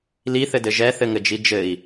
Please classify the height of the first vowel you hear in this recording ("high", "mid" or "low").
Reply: high